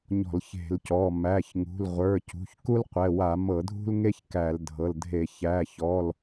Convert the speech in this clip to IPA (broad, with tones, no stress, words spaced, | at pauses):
ɲɔ̤˧˩˧lçe̤˧˩˧lcɔ˩˧˩ mæ˩˧˩çŋṳ˩˧˩lʁʷə˞˩˧˩ cṳ˩˧˩çku˥lqʷɛ˩˧˩wa˧˩˧ mɤ˧˩˧dʱṳ˥lŋe˥ç kæ˧˩˧ldʱɤ˩˧˩ldʱe˧˩˧ çæ˩˧˩çɔ˩˧˩l